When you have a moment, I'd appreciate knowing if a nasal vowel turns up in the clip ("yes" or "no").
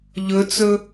no